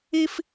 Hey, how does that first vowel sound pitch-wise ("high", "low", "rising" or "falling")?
high